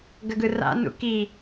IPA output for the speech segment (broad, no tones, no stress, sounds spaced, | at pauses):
ɡ ə ɡ ɯ r a̰ n ṵ k i